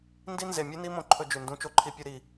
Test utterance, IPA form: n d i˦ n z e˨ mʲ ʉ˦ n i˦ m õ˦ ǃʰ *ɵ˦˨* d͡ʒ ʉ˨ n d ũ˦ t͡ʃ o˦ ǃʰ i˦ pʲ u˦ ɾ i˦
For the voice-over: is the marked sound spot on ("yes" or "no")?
no